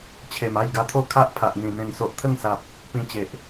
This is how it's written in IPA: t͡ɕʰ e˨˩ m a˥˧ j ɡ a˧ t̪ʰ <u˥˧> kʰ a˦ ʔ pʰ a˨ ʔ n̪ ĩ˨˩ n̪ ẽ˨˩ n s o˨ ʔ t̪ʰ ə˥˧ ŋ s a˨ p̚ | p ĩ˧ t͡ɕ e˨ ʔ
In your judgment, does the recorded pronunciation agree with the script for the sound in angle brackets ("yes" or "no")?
no